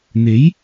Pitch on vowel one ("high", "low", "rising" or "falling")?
rising